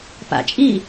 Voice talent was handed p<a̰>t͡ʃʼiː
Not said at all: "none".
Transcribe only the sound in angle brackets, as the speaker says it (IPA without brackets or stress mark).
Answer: a̰